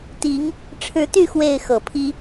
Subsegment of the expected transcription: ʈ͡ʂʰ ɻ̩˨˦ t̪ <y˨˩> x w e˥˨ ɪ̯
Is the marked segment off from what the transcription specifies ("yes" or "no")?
yes